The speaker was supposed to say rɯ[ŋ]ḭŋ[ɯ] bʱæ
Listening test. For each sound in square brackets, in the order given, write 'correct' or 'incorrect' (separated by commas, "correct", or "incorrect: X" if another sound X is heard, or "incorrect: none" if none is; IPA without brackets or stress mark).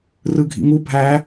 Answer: incorrect: ɡʱ, incorrect: u